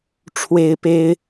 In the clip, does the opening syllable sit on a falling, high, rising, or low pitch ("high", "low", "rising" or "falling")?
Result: high